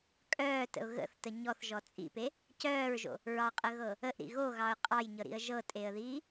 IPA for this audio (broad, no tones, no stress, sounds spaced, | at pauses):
kʼ œː t ə̰ ʊ̯ ɣ ə̰ θ t ə ɲ ɔ θ ʒ ɔ t͡sʼ ḭ p e | c œː ɹ ʒ o̰ | ɹ ɑ qʼ ə ɣ ɤ | ə ʔ ɾ ḭ ɣ o ɣ ɑ ʊ̯ qʼ ɑ j ɲ ɤ ɾ ḭ ə̯ ʒ ɤ tʼ e ə̯ ð iː